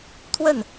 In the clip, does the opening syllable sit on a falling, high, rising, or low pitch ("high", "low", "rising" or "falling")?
falling